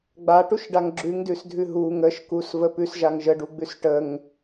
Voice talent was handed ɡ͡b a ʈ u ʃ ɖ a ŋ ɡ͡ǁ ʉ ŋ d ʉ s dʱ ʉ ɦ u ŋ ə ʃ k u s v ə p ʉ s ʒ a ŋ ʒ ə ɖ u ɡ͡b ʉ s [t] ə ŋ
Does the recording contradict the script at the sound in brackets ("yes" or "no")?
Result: yes